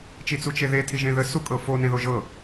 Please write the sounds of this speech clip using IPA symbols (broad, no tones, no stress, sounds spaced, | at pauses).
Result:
t͡ʃ i t͡s u t͡ʃ e ð e tʰ i ʒ ẽ ð ə s u kʼ ɤ f o n ẽ ð o ʒ ɤ